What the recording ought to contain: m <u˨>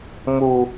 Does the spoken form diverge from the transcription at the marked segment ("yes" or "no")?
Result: no